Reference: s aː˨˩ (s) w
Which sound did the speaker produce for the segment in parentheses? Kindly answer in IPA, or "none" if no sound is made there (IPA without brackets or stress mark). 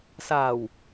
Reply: none